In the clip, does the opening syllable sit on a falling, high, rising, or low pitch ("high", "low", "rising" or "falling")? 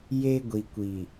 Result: high